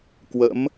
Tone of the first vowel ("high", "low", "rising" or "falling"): rising